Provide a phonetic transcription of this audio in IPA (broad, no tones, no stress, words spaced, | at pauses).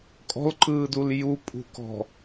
kʼɔ̤lǃɯːdul jupʼṳkɔ̤